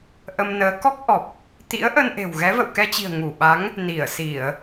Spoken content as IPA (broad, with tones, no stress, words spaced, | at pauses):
ʔə˧mnəː˨˦ kɔ˦˥k̚ʔɔ˨˩p̚ | t̪ḭ˧˥ə̯ʔə˧nʔe̤˨˩w ɣɛ˨˦və̰˧˨wkɛ˧t͡ɕi̤˨˩ə̯ ŋu˧˩ɓa˨˦ŋ | ni˧˩ə̯si˧˩˨ə̯